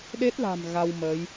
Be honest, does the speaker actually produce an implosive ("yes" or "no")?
yes